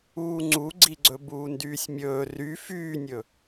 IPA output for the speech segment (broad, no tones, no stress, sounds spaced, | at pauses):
uː ŋ͡ǀ u ɡ͡ǀ i ɡ͡ǀ ɵ b uː n d yː sʲ mʲ ɵː r y f yː nʲ ɵ